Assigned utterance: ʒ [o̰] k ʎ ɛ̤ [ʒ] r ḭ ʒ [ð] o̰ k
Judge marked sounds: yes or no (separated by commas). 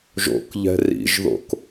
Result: yes, no, yes